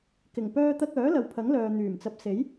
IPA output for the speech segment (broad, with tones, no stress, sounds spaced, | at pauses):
k ɪ˨˩ ŋ p œː˧ t̪ ɐ˧ k̚ œː˨˥ l ɐ˨ w pʰ ɐ˨˥ ŋ l œː˨ n̪ yː˨˩ m t͡s ɐ˨˥ p̚ s e˨˥ j